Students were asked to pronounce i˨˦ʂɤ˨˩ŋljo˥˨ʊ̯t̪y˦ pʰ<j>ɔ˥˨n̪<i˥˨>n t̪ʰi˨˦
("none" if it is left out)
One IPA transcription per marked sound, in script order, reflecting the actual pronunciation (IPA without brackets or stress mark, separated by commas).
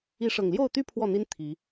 w, i˦